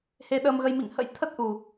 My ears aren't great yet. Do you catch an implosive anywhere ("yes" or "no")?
yes